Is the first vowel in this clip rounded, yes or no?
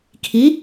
no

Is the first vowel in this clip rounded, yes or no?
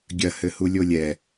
no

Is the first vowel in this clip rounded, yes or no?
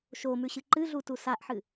yes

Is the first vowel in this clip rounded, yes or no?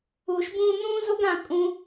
yes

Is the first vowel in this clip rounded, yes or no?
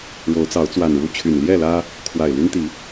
yes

